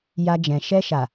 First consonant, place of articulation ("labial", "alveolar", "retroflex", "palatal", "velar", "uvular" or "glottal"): palatal